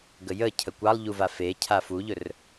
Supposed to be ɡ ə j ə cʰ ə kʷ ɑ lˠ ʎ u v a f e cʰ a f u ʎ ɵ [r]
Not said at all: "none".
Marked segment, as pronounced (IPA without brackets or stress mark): r